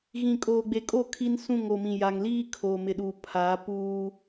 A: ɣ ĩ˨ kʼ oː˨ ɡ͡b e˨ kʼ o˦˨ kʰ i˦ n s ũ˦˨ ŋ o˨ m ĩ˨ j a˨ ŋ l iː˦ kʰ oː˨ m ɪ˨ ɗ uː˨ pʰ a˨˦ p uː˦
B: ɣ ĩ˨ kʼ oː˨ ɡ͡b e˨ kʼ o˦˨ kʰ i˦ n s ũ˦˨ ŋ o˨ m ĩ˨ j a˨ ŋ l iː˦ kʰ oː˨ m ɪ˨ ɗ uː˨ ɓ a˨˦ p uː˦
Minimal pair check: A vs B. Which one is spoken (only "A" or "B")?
A